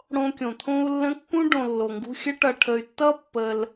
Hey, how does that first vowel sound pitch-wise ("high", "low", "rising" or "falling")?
high